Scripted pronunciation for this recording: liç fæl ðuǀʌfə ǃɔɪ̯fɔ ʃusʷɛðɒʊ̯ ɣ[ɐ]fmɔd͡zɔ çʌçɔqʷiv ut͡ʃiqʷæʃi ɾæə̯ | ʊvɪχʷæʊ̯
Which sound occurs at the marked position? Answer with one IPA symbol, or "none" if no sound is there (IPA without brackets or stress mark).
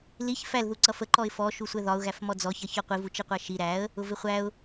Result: æ